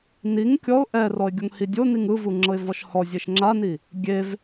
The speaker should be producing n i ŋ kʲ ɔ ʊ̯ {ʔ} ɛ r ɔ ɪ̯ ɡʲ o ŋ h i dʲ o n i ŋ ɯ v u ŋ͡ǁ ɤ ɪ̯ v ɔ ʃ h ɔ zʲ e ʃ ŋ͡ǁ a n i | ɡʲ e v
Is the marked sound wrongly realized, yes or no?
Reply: no